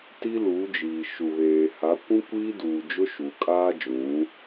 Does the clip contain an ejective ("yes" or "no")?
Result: yes